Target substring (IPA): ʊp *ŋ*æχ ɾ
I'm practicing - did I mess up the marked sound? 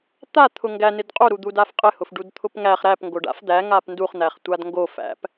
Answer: no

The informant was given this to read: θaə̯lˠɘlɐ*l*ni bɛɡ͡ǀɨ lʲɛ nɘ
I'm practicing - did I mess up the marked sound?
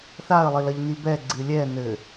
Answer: yes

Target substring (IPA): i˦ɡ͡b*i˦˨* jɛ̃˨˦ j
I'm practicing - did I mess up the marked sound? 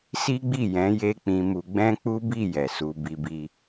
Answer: no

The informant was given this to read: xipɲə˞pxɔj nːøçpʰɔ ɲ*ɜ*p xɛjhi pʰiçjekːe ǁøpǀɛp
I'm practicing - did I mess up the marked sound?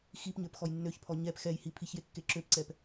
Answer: yes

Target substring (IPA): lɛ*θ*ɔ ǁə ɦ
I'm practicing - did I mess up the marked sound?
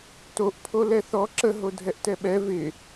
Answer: no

